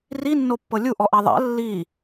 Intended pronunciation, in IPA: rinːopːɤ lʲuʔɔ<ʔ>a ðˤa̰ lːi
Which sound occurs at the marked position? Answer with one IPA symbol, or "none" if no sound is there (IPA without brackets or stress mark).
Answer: ʔ